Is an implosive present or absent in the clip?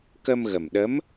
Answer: present